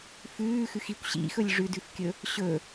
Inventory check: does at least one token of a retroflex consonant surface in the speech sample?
yes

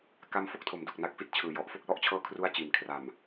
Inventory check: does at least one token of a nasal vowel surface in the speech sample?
no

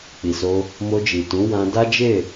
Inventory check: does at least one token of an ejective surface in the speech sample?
no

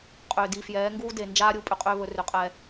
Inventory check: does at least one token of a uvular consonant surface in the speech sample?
yes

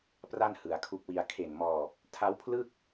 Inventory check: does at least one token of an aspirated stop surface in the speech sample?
yes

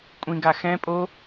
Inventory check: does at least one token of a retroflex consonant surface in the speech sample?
no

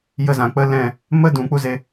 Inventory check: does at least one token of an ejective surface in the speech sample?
no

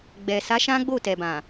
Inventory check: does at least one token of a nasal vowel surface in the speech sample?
yes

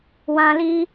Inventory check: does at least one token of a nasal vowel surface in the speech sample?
yes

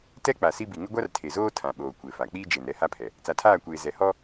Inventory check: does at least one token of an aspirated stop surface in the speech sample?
yes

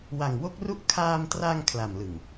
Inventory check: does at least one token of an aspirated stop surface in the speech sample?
yes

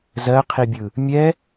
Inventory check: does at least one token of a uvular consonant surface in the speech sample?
yes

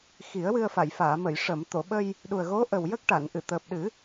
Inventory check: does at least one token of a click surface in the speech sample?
no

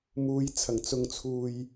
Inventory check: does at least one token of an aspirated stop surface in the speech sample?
yes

